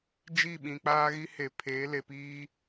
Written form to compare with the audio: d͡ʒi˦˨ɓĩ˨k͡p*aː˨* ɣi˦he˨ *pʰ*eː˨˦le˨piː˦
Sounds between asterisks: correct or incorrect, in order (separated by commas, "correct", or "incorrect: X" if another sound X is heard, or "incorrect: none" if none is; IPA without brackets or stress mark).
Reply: incorrect: aː˦, correct